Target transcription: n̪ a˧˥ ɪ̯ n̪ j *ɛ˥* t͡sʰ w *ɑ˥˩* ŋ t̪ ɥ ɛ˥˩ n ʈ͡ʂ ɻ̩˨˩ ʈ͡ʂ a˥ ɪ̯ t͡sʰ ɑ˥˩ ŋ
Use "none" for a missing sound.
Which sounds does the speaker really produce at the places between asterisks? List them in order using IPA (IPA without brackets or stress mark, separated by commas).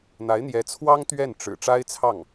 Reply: ɛ˧˥, ɑ˥